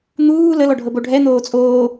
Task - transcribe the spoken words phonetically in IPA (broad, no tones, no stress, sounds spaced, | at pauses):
n̪ uː l ə l ɔ ɖʱ ɤ b o ɖʱ ɛ n̪ oː t͡sʼ oː